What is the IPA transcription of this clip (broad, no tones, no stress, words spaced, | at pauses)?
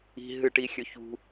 i̤ ɦɨʈi xʲɵçṳ